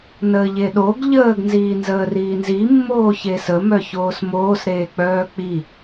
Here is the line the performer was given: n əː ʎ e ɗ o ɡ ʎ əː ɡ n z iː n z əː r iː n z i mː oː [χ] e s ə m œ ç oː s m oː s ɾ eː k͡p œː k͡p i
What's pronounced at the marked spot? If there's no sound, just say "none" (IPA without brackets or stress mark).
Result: ç